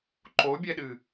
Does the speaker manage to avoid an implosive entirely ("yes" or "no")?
no